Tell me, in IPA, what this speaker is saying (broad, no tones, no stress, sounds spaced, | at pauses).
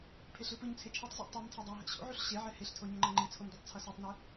pʰ e ɬ ɯ p ɯ ɲ t͡sʰ e t͡ʃʰ i tˤ z ɛ̰ tˤ u m tʰ e dˤ a ɦ ɛ̰ ɕ o̰ ʕ u ɬ ɕ e ʕ ɛ h e ɬ tʰ o ɲ ʌ ŋ͡ǃ ʌ ŋ͡ǃ i t͡sʰ o m d u tˤ t͡sʰ ʌ s ɯ tˤ n ɛ